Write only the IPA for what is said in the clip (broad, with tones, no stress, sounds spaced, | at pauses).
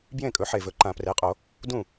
b j ẽ˥˩ kʼ ɵ˩˥ ħ e˨˩ v ɵ˩˥ ǃ ã˨˩˦ p r e˩˥ qʼ o˨˩˦ | d ũ˥˩